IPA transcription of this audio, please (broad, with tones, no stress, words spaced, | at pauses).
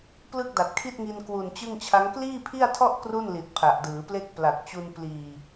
plɯ˥˩k̚da˨˩t̚kʰi˥˩t̚ŋi˧n kwu˨˩nt͡ɕɯ˥˩ŋt͡ɕʰa˦˥ŋ kliː˥˩pʰi˥˩a̯tʰɔ˥˩ʔ kru˥˩nli˨˩t̚ pʰa˨˩ʔdɯː˩˦ple˥˩k̚ pla˨˩k̚t͡ɕu˧n pliː˨˩